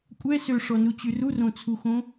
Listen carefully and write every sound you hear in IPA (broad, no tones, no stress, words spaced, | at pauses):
kʷʼɛ søʂɔnut͡ɕy rurõt͡sʰuxõ